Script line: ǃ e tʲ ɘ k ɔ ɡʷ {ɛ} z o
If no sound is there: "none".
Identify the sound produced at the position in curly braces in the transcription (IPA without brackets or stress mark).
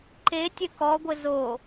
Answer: ɘ